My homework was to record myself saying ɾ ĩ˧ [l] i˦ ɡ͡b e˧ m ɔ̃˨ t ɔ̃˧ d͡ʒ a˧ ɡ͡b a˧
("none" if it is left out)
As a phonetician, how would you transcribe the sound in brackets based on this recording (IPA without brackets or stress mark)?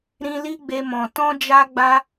l